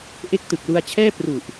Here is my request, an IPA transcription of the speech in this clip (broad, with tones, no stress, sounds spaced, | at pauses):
ʔ e˦˥ k̚ t ɯ˨˩ k̚ l u˧ a̯ t͡ɕʰ ɛː˥˩ p r u˨˩ ʔ